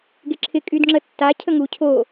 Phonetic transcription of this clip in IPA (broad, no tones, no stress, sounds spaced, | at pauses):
ɡ e ǁʰ ɪ kʼ y d ŋ͡ǁ ə tː a cʰ ə ŋ u cʰ o